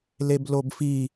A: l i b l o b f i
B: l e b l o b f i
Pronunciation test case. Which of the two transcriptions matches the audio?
B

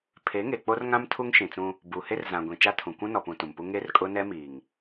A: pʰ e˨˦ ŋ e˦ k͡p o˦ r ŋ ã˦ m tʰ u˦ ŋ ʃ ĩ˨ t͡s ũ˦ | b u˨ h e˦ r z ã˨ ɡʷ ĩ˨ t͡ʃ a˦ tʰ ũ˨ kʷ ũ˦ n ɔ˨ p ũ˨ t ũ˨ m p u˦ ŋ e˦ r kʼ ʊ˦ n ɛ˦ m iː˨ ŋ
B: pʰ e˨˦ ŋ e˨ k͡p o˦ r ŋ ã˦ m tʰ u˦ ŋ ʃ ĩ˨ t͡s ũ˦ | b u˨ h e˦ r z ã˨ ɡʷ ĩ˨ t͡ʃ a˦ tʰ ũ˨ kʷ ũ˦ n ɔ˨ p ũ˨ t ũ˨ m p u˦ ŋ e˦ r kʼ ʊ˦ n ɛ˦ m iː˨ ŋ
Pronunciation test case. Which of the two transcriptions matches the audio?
B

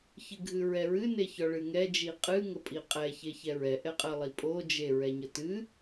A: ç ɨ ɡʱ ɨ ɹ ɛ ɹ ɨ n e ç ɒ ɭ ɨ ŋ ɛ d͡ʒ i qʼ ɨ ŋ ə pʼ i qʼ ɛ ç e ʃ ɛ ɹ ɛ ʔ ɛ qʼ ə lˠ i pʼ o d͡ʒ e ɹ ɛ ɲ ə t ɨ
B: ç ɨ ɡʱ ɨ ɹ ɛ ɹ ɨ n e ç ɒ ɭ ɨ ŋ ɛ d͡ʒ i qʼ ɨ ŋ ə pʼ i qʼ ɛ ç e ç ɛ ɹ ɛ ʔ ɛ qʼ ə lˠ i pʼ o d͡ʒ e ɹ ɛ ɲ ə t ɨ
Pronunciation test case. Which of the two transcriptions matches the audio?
B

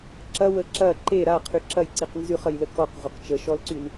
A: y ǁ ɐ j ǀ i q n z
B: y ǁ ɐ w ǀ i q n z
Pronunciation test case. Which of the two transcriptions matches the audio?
A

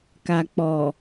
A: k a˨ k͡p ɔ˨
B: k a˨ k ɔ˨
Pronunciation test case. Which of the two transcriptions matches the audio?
A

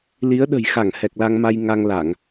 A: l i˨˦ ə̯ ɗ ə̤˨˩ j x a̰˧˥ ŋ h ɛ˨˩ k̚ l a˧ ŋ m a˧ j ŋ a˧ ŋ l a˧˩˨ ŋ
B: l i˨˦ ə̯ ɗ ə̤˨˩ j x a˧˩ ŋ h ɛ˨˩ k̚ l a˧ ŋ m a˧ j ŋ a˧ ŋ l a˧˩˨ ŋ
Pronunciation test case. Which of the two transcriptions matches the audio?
B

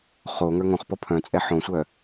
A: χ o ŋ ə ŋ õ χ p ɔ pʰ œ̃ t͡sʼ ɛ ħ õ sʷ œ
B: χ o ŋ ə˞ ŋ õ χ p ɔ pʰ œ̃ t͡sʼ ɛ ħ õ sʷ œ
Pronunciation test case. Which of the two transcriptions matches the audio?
B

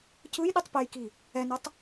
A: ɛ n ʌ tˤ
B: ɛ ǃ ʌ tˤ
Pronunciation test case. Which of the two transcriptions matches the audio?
A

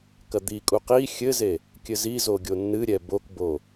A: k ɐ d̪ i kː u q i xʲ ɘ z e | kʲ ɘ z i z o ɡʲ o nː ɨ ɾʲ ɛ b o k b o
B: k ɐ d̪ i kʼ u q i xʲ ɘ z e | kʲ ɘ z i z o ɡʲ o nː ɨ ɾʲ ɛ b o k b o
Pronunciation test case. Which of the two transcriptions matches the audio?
B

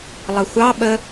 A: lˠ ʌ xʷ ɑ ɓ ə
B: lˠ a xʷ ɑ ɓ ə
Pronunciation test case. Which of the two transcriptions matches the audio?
A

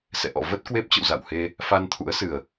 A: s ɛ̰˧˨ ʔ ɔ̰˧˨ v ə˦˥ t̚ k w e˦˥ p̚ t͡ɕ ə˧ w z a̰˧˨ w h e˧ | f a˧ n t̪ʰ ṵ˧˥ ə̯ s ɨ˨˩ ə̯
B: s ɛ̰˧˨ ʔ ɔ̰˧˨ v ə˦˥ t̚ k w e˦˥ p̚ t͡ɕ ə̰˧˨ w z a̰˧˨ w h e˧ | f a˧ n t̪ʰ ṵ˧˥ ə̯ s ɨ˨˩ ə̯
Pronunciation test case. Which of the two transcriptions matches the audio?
B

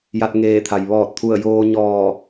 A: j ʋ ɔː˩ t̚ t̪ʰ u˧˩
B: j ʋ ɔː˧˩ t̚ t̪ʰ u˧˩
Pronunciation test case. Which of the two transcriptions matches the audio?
B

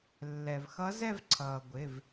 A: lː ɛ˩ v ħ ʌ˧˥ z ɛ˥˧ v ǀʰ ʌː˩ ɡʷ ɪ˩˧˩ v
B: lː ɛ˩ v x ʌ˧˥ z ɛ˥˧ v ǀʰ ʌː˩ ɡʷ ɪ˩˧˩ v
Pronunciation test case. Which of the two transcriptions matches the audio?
B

